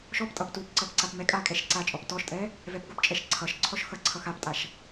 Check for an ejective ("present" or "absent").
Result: present